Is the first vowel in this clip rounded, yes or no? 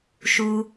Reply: yes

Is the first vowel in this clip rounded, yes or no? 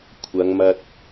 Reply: no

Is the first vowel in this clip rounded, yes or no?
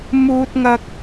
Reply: yes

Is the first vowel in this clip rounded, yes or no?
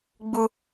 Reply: yes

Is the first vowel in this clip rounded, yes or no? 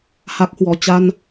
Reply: no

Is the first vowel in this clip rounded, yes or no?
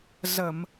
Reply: no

